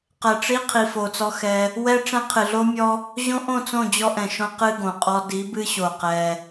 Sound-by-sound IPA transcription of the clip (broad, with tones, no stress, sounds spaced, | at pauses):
q ɛ˨ ʈ͡ʂ i˦ qʰ i˨ f o˨ t͡s ɔ˦ x ɛ˦ | w ɛ˦ ʈ͡ʂ ɛ̃˦ qʰ ɨ˨ ɮ o˦ mʲ ɔ˦ | ʑ õ˦ ʔ õ˦˨ t͡s õ˦˨ d͡ʑ ɔ˦ ʔ ɛ̃˨ ʃ õ˦ q ɨ˦ ɡ õ˨ qʼ ɔ˦ d i˨˦ b ɨ˦ ɕ o˨ q ɛ˦